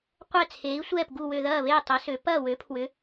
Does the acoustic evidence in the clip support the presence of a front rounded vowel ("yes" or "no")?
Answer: yes